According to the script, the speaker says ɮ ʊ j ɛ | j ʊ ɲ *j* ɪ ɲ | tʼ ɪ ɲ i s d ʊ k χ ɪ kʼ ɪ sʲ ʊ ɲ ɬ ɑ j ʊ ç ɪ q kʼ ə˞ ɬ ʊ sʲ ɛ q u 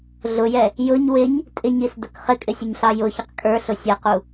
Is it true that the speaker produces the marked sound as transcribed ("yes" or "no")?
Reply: no